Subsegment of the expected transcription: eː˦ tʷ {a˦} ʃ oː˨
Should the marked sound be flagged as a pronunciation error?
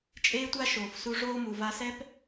no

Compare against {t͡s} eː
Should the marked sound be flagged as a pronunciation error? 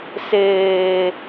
yes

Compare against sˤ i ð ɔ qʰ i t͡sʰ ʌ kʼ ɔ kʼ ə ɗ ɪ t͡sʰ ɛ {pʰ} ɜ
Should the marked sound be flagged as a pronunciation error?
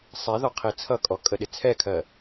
yes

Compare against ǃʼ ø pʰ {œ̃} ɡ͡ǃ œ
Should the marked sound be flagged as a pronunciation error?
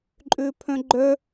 no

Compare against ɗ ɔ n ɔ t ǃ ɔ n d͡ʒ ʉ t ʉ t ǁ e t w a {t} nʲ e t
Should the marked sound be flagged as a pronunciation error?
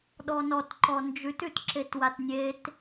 no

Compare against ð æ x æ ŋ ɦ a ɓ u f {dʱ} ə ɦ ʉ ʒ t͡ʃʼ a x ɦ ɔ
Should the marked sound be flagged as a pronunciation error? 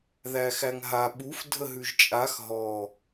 no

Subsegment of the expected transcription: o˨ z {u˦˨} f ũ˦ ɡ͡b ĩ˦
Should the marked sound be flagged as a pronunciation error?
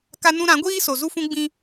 yes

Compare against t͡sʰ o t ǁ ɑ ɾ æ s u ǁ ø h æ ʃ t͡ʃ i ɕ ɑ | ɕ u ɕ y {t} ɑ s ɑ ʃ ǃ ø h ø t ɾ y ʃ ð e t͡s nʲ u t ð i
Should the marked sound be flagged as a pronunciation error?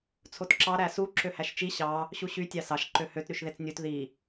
yes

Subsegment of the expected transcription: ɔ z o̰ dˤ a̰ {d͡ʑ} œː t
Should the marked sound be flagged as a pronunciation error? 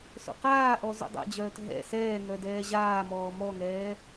no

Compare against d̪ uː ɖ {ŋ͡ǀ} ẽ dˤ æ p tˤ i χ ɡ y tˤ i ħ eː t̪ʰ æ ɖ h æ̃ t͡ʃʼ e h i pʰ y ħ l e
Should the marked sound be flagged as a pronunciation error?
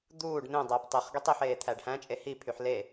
yes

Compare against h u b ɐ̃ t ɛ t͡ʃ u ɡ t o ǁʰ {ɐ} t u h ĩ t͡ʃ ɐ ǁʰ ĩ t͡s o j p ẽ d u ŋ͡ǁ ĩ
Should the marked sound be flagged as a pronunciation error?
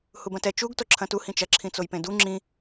yes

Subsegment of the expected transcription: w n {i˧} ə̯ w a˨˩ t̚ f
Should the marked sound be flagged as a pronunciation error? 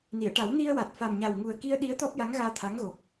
no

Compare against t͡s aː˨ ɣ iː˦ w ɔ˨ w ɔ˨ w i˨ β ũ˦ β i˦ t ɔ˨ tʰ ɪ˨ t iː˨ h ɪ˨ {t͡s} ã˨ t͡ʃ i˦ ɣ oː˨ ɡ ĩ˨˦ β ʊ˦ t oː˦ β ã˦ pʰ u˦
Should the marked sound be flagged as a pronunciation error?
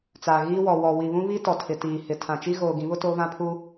yes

